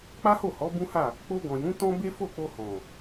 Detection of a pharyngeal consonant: absent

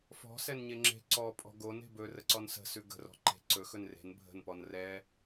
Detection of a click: present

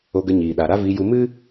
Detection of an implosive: present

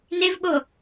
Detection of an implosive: present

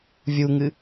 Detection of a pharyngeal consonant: absent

